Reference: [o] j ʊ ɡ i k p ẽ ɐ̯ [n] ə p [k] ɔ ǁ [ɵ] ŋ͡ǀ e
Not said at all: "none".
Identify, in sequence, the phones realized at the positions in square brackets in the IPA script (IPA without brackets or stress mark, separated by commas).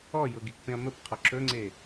ɔ, m, qʰ, ɵ